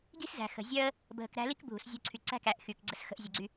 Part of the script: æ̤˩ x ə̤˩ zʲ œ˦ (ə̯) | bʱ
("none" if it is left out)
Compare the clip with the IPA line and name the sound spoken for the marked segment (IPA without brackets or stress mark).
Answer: ə̯